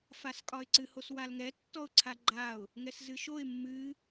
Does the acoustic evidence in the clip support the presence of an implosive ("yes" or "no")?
no